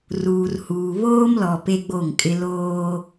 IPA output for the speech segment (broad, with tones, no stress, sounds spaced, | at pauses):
r uː˨ r h uː˨ β oː˦ m l ɔ˨ p e˦ ɡ͡b o˦˨ ŋ kʼ ɪ˦ l oː˦